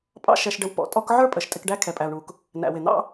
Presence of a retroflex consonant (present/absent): present